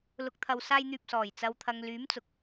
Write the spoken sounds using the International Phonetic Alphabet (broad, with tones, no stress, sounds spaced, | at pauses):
l ʊ˨ k̚ t̪ʰ ɐ˨ w s aː˧ j n̪ yː˨ p̚ s ɔː˨˩ j t͡s ɐ˨ w t̪ʰ ɐ˨ ŋ l yː˨˥ m t͡s ʊ˨ k̚